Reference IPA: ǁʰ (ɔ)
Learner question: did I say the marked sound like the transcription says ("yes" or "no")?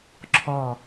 yes